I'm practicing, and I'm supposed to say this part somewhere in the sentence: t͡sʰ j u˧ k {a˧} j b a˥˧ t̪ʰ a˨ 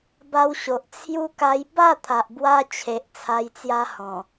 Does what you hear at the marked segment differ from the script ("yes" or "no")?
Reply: no